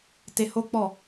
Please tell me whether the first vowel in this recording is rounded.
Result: no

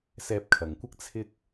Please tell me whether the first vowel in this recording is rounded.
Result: no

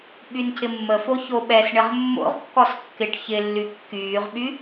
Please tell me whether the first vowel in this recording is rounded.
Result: yes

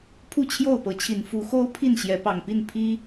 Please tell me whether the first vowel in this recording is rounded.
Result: yes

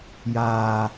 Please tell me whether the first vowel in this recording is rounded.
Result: no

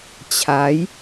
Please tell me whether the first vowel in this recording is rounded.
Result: no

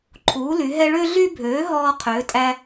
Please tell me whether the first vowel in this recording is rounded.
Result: yes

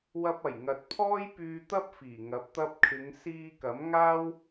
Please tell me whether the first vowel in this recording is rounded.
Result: no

